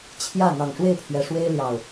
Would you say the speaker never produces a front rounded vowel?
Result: yes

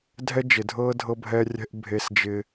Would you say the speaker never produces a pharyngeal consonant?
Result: yes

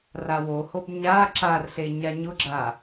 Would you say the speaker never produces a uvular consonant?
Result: yes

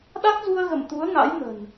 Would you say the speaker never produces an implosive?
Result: no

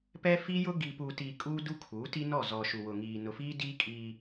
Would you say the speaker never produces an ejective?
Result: no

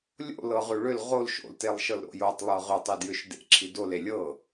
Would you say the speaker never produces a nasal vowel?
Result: yes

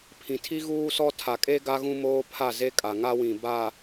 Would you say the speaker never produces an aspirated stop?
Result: no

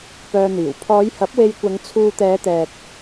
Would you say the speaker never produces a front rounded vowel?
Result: no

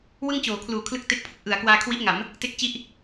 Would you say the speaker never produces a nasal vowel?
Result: yes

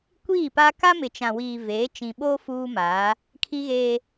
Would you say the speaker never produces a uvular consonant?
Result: yes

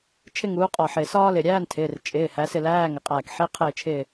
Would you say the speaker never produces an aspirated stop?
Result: no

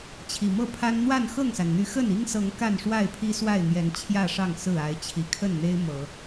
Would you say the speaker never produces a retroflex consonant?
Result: no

